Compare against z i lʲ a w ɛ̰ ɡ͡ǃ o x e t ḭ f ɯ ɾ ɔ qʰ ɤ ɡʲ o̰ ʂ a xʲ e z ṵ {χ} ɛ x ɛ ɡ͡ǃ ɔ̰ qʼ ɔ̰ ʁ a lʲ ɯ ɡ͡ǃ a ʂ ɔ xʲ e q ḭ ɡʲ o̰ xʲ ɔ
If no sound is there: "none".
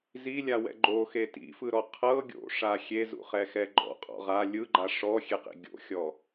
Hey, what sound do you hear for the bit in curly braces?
χ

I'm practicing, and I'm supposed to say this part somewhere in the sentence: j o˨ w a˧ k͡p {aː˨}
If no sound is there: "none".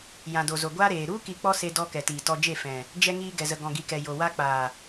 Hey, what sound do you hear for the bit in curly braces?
aː˨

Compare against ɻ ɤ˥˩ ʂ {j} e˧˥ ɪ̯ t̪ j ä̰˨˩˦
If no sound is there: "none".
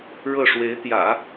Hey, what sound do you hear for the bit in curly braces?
w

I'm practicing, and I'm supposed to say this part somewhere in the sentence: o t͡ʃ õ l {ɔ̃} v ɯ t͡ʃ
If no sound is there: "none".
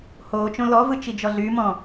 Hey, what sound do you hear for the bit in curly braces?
ɔ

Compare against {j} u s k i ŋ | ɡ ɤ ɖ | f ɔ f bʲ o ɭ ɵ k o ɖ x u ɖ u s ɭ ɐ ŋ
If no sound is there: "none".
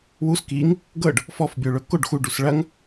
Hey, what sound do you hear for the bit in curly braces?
w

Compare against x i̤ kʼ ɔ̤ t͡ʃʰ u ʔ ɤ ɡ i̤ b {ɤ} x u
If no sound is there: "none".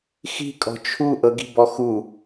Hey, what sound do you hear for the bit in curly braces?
ɔ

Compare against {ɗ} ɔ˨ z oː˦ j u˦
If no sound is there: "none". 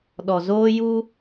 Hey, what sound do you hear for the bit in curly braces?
ɗ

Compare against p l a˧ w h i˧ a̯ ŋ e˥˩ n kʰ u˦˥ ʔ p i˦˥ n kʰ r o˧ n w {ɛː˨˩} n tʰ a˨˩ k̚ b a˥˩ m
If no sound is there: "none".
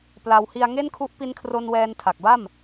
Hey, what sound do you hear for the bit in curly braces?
ɛː˧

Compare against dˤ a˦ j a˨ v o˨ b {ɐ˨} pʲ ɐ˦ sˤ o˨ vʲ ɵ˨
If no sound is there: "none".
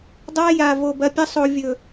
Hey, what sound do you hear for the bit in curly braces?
ɐ˨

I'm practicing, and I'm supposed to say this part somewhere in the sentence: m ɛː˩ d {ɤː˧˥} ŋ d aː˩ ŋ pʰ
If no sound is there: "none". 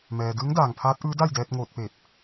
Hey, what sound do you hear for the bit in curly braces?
ɯː˧˥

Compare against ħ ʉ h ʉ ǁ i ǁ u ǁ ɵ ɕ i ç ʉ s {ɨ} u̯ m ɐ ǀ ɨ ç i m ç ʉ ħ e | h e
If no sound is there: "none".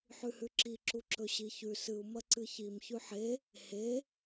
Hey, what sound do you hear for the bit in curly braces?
ɨ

